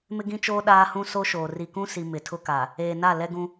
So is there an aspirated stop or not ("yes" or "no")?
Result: yes